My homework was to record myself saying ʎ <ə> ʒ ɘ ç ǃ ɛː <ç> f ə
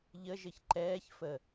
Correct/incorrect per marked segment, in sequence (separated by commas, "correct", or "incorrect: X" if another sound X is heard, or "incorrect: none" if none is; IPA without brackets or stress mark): correct, correct